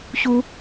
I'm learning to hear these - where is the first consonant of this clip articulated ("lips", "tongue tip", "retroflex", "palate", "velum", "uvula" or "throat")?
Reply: palate